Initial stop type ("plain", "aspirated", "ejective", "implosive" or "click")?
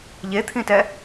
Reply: aspirated